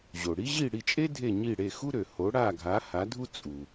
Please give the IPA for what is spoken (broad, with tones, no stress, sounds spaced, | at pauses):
ʑ o˩ ɽ i˥ ʑ i˥˩ ɽ i˥˩ t͡ʃʼ e˥ dʱ e˥˩ ɲ i˥˩ ɽ e˥˩ x u˥ ɾ ø˩ h o˩˥ ɽ a˥˩ ɡʱ a˩˥ h a˩˥ dʱ u˥ t͡sʼ u˩